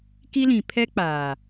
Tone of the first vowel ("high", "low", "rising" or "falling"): high